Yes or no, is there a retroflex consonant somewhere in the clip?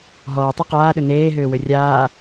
no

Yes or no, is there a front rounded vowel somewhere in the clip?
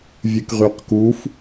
yes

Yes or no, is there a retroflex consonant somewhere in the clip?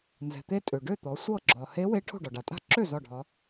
yes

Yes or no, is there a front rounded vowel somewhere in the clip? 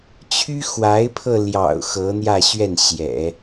yes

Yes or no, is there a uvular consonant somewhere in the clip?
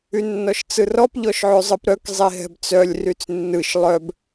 no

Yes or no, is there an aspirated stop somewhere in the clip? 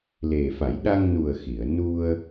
no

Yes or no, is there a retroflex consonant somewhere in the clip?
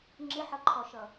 no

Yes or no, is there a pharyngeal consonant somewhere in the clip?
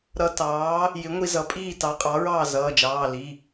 no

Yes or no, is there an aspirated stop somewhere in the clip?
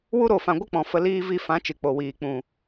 no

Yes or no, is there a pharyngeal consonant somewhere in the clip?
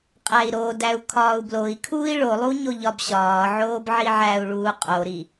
yes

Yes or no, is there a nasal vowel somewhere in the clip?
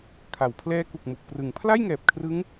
no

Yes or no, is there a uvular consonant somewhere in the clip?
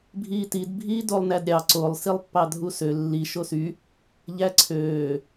no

